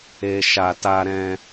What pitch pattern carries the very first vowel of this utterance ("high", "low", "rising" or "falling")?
low